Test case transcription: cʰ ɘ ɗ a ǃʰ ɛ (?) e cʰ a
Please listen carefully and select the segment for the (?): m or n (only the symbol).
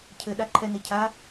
n